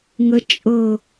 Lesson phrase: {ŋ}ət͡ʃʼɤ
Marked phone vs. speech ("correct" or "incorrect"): correct